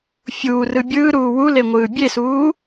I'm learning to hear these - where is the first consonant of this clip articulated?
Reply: lips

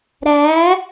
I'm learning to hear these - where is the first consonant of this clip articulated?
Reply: tongue tip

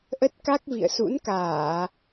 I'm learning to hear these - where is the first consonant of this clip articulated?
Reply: throat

